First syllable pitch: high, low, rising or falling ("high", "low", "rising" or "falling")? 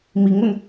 rising